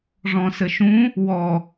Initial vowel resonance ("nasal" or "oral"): nasal